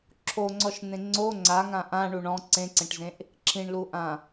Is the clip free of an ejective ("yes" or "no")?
yes